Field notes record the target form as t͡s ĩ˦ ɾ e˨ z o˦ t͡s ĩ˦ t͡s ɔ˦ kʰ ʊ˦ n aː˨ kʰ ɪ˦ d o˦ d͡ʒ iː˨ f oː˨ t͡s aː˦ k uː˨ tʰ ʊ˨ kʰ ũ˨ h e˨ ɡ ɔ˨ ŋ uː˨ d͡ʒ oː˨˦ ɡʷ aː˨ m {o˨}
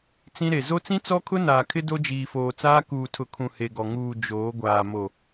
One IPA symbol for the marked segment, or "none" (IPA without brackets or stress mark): o˨